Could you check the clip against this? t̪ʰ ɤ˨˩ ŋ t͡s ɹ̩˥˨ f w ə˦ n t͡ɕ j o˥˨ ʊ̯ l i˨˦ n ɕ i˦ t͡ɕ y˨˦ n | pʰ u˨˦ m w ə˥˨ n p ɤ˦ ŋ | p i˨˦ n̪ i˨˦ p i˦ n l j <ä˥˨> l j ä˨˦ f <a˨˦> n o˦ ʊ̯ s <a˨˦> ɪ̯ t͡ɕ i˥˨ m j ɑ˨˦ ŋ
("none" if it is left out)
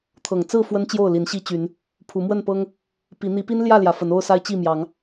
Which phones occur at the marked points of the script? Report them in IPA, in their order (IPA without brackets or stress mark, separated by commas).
ä˥˨, ə˨˦, a˦